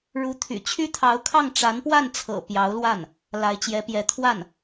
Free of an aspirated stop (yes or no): no